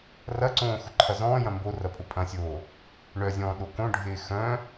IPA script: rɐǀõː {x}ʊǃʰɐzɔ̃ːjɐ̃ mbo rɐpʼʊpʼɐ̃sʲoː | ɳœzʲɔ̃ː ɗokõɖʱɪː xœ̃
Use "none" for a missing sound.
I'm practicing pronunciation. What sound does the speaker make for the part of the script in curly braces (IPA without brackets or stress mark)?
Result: x